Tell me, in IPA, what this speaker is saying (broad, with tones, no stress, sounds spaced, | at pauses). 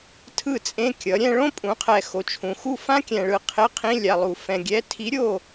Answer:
tʰ ɯ˥˨ t͡sʼ ẽ˧˥˧ kʲ ʌ˩˥ ɾʲ ɛ̃˥ ɭ õ˥ pʼ ũ˩˥ qʰ ɛ˨ x o˨ t͡ʃʰ ũ˨ x u˥˨ f ã˥ kʲ ɛ̃˨ ɭ ɯ˨ qʰ e˧˥˧ qʰ ĩ˧˥˧ lʲ a˨ lˠ u˨ f ɛ̃˨ ɡʲ ɛ˧˥˧ tʰ i˧˥ ɾʲ o˥˨